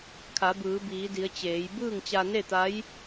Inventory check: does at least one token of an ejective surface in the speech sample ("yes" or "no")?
no